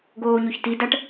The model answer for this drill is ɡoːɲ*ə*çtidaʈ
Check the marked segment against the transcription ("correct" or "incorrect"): incorrect